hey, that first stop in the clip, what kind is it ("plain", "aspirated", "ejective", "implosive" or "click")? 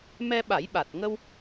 implosive